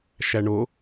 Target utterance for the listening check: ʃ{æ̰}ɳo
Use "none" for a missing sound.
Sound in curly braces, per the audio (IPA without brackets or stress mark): æ